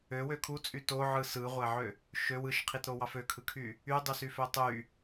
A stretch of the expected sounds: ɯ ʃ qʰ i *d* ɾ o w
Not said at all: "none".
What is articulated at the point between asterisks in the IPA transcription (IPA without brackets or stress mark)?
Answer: t